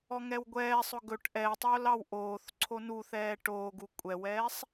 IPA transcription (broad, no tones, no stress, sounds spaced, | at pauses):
ɔ ŋ ɛ w ɡʷ ɛː sˤ ʊ ɡ ɵ ʈ ʔ ɛ tˤ oː l ɑ w ʔ oː θ ǀʰ o n u θ ɛː ʈ oː ɡ u kʷʼ ɛ w ɛː sˤ